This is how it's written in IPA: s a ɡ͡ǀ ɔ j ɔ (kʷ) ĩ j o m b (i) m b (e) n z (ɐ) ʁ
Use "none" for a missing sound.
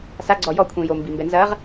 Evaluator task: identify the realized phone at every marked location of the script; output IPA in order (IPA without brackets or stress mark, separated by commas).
kʷʰ, i, ɛ, ɐ